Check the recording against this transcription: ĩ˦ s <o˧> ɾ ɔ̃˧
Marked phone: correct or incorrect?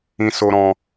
correct